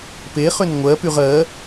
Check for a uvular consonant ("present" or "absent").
present